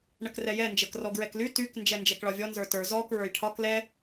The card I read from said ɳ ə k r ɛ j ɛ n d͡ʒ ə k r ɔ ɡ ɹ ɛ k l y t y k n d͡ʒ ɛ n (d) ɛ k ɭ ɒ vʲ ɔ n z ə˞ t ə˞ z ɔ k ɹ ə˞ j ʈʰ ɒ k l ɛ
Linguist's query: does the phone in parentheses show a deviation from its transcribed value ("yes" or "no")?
yes